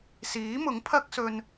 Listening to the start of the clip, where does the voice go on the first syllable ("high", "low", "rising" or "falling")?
rising